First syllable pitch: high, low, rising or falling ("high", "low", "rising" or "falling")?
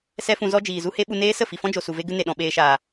high